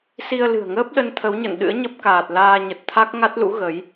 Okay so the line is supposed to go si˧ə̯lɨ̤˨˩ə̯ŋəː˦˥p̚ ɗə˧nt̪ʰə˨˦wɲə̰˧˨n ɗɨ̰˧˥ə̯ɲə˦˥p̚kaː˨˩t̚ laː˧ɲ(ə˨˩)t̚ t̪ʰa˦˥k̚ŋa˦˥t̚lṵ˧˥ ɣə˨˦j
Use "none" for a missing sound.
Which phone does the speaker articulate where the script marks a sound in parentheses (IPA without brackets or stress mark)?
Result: ə˨˩